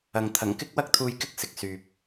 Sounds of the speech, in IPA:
ɐ˨ŋt̪ʰɐ˨˩ŋ kɪ˥k̚wɐ˥k̚t̪ʰuː˧j kɪ˥k̚sɪ˨˥k̚ syː˨p̚

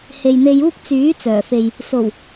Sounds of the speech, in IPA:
he˨jn̪e˧juː˥k̚ t͡syː˨˥ t͡sœː˨˩fe˨j | so˨˩w

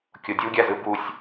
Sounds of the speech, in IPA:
kʲodʲuɡʲazɯ busʲ

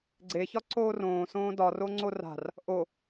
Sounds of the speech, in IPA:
ɡ͡ǀeçɒ ǀoːrõːsõː dɒro ŋ͡ǀora̤r | ʔo

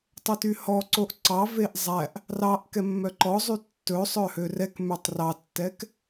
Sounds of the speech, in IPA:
tˤøtyhɔǀoʔ ǀɑveʔ zˤæʔ | rɑʔ kɛmːœǃɔzˤy tːɵsˤœ hørɛkmøtˤ rɑtːɛk

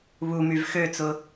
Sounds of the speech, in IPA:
βumyv xøt͡sʊ

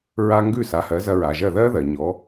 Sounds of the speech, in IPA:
ɹa˥ ŋɡʉ˥˩sa˩˥hɜ˩˥ zɐ˧ɹa˩ʒɜ˥˩ ðɜ˥ðɜ˩ ɲɔ˩˥

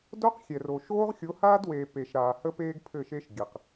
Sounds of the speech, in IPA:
do˦q xʲɛ˨ro˨ ʃoː˦ʁxʲo˨˦haː˦dweː˨ pe˨ʃɾaː˨ hə˦peː˦ɡ pʰɘ˦˨ʃe˦ʃ ɡʲɘ˨q

